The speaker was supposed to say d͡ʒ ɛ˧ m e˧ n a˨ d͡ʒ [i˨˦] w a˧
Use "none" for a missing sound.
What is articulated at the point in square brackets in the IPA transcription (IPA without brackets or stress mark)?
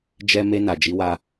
i˨˦